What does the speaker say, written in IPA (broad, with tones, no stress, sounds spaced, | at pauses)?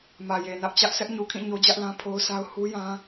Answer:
m ä˨ j e˨ n ä˦ ʔ t͡ɕ ä˦ ʔ sʰ ɛ˦ ʔ ɲ u˨ kʰ ĩ˦˨ ɲ o˦ d͡ʑ ä˦ ʔ l ã˦ pʰ o˦ ʊ̯ sʰ a˦ ʊ̯ h u˦ j ã˦